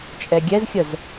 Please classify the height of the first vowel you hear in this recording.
mid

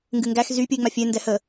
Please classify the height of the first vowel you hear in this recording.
high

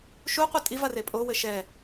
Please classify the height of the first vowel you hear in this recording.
high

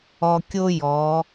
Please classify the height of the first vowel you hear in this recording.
mid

